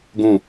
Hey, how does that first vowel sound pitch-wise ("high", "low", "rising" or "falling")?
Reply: falling